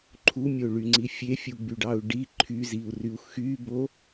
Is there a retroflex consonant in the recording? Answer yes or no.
yes